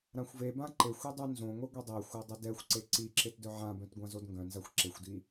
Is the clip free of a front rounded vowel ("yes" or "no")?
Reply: no